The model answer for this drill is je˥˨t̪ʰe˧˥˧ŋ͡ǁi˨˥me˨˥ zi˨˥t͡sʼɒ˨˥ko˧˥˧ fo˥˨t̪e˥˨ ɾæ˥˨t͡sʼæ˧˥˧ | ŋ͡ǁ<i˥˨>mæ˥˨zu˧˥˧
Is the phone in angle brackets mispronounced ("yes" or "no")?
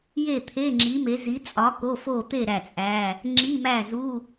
yes